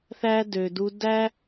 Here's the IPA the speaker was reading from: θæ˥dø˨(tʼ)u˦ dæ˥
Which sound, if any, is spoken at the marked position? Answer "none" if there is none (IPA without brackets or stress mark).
d